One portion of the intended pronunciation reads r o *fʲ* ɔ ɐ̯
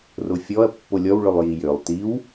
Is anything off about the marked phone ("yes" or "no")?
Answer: no